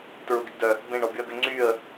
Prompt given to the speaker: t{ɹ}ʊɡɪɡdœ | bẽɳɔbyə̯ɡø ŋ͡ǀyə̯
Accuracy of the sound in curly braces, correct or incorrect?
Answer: correct